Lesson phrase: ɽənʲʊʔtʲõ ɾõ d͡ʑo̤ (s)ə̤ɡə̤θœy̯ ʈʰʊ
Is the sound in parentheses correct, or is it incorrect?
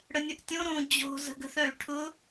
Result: incorrect